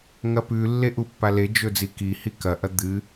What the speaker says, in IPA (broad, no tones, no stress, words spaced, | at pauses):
ŋɐpʉlːe ʔupːaled͡ʒɵ d͡zikihi kɐʔɐ d̪ɨ